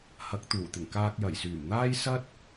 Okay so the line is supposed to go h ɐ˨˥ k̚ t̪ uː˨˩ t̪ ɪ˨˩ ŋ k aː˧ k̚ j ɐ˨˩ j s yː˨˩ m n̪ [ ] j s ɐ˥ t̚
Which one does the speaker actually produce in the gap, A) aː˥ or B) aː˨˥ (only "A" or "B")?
A